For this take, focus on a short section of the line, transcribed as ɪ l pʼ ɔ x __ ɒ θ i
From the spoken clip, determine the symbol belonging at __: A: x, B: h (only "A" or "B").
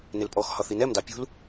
B